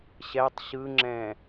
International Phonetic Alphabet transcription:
ɕ ɛ tˤ ɕ ɯ ŋ͡ǁ ɛ̃

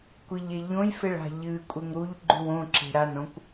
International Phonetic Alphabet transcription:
kʷ i ʎ e ʎ õ j f e ɭ a̤ ʎ ɨ kʷʼ e ŋ ɾ u ʎ ɡ͡ǃ ʉ w õ ǁ e̤ ɾ a n õ kʷ

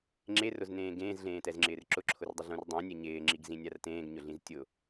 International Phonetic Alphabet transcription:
ŋ͡ǁ e r ʊ z n ẽː ɡ ẽː z ɮ ẽː t ɛ z ŋ͡ǁ ɪː r ǁ ʊ ǁʰ ʊ r dˤ ʊ ɮ ũ r dˤ ã nʲ ɛ ɲ ɪː ŋ͡ǁ i ɡ z ĩ nʲ a r t ẽː ɡ ɲ ʊ ɮ ĩ z tʲ ʊ

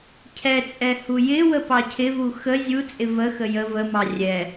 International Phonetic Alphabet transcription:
cʰ ɛ t͡sʼ ɛ h u j ɪ w ə p ɑ cʰ ɪ v u x ə zʲ u t͡sʼ ɪ v ə x ə j ə v ə m ɑ rʲ ɛ

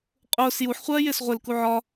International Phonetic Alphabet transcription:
qʼ ʊː s j u ħ χʷ ɜː j ɪː s ʁʷ ɪ l k u ʕ ɒ

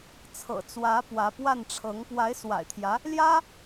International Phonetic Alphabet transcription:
t͡sʰ ɤ̰˨˩ t͡s w ä˧˥ p w ä˧˥ p w a˥˩ n ʈ͡ʂʰ ɤ˧˥ ŋ p w a˧˥ ɪ̯ s w a̰˨˩ ɪ̯ t̪ʰ j ä˧˥ | l j ä˥

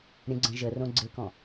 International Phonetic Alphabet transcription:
ɾʲ ə̃ ɡ͡ǀ ə̃ ʒ ə r õ ɡ͡ǀ ɪ k ɔ̃

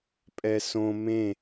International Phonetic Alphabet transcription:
pʼ ɛ s õ m ẽ

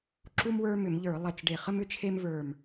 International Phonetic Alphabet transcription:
ǁ u˥ m w ə˞˥ m ʏ˧˩˧ m ʎ ə˞˧˩˧ lˠ e˧˩ t͡s ɖ e˧˩ χ ə˥ m ʏ˥ t͡ʃʰ e˥ m v ə˞˧˩ m

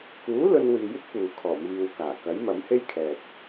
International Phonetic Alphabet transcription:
k uː˨˥ l ɵ˧ n w iː˨ j ɪ˥ k̚ p uː˨ kʰ ɔː˨˩ m iː˨ w k aː˨˩ k ɐ˨˥ j m ɐ˨˥ m h e˥ j kʰ ɛː˨ t̚

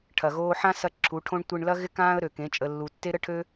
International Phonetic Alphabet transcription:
ʈʰ ɐ˨ ɣ oː˧ ħ ã˦ s ɐ˧ ǁʰ u˨˦ ʈʰ õ˦ ɳ tʷ e˧ ɳ l ɐ˦ ɣ ɪ˦ k ãː˦ ə̯ ɾ ø˨ k ẽ˨˦ t͡ʃʼ ə˨ lː u˨ tː e˦ ɾ ə˦ ʈʰ ø˦

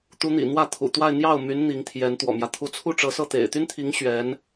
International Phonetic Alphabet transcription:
t̪ u˧˥ n̪ ḭ˨˩ n̪ w ä˥˩ t̪ʰ ṵ˨˩ t̪ w a˥˧ ɪ̯ n̪ j ɑ˥˩ ʊ̯ m y˧˥ n n̪ i˧˥ ŋ t̪ʰ j ɛ˧˥ n t̪ w ɔ̰˨˩ m j ä˦ t̪ʰ u˧˥ t͡sʰ u˥˩ ʈ͡ʂ ɤ˧˥ s ɤ˥˩ t̪ ḛ˨˩ ɪ̯ t̪ y˥ n t̪ʰ i˧˥ ŋ ɕ ɥ ɛ˧˥ n

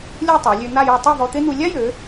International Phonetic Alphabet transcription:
lʲ u˥˧ tˤ a˩˧ lʲ ø˧ n̪ a˥˧ j ɔ˧ tˤ ɛ˥˧ v ɔ˧ t̪ e˥ n̪ u˧ lʲ a˥ j ø˩˧

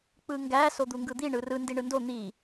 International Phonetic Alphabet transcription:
k͡p ɯ ŋ ɡ æ s o d̪ u ŋ ɡ ɯ d̪ i ɳ ɯ r ɯ n d i ɳ ɯ n d o n̪ i

